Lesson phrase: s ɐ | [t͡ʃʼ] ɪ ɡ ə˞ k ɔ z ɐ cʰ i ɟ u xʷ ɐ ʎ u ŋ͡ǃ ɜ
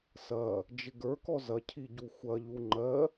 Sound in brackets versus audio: incorrect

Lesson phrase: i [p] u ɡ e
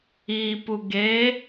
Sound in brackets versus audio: correct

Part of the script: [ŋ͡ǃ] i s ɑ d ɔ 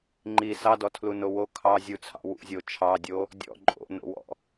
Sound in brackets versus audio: correct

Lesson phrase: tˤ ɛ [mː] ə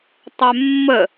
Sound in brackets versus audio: correct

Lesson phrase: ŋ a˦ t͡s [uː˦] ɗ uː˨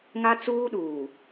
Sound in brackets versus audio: correct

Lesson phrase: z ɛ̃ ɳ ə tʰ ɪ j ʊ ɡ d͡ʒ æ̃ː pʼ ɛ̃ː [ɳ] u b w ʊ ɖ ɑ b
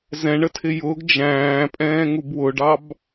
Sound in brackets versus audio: incorrect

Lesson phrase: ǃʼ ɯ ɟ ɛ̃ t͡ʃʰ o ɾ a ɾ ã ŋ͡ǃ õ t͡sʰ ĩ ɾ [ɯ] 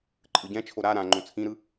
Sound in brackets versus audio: correct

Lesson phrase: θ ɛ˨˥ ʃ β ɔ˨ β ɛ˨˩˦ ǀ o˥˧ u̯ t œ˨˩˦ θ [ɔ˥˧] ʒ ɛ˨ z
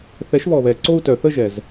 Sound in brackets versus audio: incorrect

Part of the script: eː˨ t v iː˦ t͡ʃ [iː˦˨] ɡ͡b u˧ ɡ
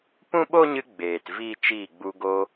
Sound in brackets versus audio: correct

